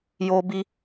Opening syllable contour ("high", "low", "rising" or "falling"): high